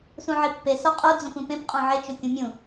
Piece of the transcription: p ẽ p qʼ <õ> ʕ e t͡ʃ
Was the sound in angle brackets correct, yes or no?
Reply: yes